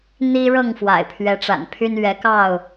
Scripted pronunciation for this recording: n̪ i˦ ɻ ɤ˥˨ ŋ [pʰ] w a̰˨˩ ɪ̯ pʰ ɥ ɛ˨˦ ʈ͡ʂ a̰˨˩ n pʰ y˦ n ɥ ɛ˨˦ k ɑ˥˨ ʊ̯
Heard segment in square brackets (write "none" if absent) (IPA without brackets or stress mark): f